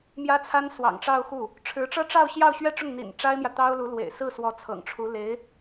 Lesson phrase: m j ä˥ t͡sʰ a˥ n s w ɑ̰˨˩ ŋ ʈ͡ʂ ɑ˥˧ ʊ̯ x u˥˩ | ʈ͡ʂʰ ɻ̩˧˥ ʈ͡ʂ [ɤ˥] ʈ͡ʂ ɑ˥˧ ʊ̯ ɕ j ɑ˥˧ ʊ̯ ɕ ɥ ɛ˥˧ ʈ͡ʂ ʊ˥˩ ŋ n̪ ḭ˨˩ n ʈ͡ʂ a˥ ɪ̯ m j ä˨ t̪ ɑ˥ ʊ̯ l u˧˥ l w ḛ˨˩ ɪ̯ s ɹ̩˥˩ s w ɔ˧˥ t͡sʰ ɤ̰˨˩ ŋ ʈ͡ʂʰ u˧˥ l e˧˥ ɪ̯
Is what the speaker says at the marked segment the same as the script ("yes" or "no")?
yes